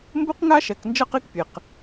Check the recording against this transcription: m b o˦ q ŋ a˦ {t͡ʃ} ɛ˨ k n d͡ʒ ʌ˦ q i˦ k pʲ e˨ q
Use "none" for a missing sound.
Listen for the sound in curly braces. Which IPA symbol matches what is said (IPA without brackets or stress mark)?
ʃ